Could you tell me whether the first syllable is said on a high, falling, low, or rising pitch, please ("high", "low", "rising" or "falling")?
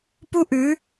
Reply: high